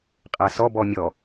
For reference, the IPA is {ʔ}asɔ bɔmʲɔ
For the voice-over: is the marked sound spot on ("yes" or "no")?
no